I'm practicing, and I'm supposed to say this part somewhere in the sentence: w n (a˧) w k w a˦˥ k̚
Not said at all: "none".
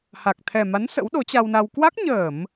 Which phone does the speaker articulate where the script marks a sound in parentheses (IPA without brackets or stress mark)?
a˧